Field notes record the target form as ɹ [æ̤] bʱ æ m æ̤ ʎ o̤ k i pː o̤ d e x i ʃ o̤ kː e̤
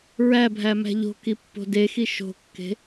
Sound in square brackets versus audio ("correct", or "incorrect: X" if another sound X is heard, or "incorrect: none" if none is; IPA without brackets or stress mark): incorrect: æ